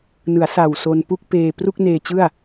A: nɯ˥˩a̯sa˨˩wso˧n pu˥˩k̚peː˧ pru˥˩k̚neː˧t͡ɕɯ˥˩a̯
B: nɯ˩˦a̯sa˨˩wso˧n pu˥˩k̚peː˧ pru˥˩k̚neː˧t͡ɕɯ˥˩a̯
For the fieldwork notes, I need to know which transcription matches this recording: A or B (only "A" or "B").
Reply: B